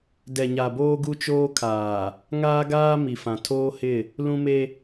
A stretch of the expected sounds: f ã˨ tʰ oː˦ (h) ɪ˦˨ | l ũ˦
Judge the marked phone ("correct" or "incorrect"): correct